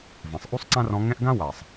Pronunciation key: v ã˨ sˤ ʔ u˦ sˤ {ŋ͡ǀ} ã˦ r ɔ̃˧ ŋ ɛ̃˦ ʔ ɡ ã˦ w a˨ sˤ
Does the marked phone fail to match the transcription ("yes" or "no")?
yes